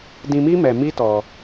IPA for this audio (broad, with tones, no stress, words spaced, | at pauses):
dĩ˧mi˦ mɛ˧mi˦tɔ˧